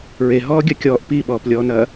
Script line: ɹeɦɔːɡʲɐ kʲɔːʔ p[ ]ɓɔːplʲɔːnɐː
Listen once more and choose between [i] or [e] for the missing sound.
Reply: i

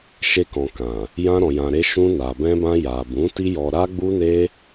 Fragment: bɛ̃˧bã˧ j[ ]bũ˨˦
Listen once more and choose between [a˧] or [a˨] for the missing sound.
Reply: a˨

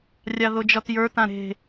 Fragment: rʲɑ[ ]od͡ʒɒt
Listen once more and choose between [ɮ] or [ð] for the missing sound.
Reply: ð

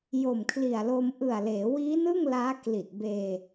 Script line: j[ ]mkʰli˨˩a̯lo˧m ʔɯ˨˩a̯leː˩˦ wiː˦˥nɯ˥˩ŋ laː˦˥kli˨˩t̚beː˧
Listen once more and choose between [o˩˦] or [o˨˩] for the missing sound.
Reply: o˨˩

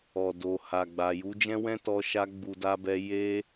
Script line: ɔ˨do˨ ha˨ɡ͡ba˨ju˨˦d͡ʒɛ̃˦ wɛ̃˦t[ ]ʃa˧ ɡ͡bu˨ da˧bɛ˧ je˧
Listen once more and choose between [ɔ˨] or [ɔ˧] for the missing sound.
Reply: ɔ˧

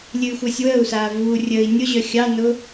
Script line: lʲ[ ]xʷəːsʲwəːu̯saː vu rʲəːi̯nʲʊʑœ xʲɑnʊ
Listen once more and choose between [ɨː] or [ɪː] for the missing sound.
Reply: ɨː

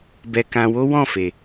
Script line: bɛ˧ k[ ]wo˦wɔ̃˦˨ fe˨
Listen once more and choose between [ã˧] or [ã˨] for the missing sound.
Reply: ã˧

